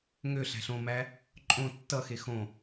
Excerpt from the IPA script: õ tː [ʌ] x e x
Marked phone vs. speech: correct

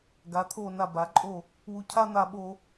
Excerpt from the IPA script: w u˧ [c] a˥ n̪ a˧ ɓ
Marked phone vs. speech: incorrect: cʰ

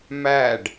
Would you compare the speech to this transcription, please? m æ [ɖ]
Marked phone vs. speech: correct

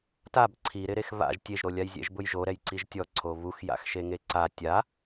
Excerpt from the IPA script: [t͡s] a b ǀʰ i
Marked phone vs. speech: incorrect: t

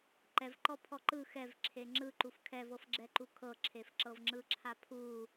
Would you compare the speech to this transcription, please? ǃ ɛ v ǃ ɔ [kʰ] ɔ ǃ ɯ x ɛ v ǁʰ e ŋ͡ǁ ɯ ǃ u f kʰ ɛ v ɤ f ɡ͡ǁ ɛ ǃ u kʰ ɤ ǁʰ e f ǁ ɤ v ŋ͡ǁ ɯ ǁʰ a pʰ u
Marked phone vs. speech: incorrect: pʰ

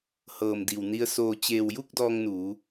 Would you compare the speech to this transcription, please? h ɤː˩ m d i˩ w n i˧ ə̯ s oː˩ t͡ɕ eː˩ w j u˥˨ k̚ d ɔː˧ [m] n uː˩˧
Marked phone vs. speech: incorrect: ŋ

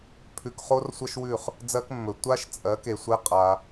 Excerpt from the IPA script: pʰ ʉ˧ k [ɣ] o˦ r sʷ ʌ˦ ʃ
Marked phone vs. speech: incorrect: χ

